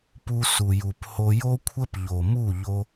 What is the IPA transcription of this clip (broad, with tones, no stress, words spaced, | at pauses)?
pu˧su˨ju˨pho˧ jo˦kʷʰə˦p ʎo˨ mu˦˨ʎo˧